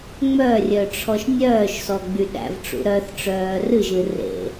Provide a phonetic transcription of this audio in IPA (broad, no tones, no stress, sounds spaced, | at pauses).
ŋ͡m œ rʲ œ ʈ͡ʂʰ ɔ ʃ nʲ œː ʃ s ɔ ɡ͡b y ɗ æ̰ v ʈ͡ʂ ṵ ɾ œ θ ʈ͡ʂ œː r ɨ ʒ ɨ r ḛ